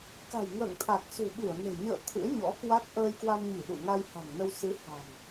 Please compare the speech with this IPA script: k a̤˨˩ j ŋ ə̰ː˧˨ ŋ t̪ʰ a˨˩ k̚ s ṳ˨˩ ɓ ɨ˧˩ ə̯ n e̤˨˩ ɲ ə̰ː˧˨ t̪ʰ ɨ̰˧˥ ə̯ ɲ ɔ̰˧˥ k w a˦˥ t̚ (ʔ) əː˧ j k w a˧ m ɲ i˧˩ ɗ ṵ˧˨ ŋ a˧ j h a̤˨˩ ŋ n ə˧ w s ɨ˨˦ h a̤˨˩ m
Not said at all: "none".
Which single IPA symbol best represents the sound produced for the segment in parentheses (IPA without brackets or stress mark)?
ʔ